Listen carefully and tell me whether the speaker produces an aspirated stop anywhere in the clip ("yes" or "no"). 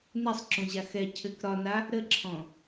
yes